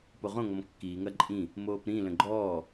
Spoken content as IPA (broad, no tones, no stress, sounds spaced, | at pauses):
p o ʁ õ ŋ ɔ m kː iː ŋ ɐ ǃʼ ĩ | m oː p ɾ ĩ l ə̃ ɡ͡ǃ ɔː